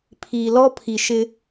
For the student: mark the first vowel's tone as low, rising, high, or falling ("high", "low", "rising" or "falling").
low